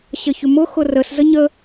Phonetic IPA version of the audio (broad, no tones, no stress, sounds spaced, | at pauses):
ɕ ə ç ʏ m ʊ x ʊ r ə s z ə ɲ ə